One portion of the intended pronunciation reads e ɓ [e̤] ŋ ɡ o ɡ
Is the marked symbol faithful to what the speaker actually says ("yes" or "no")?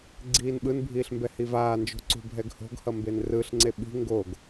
no